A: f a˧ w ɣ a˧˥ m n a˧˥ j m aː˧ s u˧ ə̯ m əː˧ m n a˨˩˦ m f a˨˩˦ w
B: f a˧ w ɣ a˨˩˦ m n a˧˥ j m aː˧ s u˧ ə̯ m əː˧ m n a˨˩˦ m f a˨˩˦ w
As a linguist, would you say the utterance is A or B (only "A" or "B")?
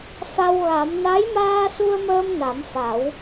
B